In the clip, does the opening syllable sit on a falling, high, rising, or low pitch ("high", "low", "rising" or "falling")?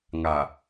low